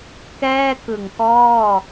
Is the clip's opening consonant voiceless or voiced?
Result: voiceless